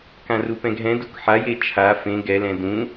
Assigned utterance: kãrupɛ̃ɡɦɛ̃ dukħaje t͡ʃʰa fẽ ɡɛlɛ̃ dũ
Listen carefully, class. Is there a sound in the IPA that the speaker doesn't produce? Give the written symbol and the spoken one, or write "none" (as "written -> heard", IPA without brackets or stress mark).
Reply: none